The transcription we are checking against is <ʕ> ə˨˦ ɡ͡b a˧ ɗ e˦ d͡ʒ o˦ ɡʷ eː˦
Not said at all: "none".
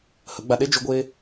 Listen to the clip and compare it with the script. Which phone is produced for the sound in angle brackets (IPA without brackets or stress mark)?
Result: h